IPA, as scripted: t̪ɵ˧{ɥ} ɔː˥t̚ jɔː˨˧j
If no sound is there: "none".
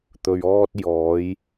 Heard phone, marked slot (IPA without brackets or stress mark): ɥ